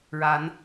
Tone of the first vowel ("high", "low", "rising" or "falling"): rising